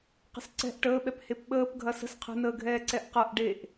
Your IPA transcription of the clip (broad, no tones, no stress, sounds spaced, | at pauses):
q ə̤ s ǀ ɛ̤ ʔ ʈ əː ɓ ɛ p h e p ɓ əː p ɡʱ ɐ s ə̤ s qʰ ə̤ n əː ɡʱ ɛː ǀ ɛ ʔ q ɐ ʔ ɖ e ʔ